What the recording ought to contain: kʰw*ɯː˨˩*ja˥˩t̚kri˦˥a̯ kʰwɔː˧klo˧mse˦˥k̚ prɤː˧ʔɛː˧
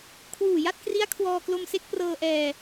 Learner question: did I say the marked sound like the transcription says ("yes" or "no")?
no